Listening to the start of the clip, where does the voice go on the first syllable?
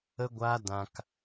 high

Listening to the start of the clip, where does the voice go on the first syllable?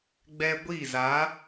high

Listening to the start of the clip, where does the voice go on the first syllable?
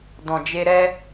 low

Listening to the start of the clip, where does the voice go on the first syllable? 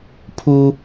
high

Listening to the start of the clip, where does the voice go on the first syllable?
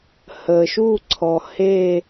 low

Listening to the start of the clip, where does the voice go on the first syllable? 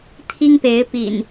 high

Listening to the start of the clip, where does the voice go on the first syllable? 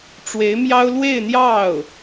rising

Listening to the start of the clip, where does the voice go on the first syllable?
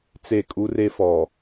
falling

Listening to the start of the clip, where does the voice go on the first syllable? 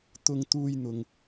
high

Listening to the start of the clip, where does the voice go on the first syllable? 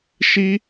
high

